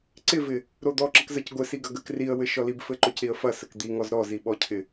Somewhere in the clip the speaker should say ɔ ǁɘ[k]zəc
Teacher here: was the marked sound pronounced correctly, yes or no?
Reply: yes